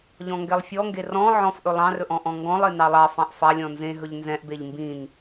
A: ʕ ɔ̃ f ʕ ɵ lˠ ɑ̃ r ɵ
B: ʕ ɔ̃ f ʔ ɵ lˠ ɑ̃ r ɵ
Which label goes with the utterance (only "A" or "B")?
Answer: B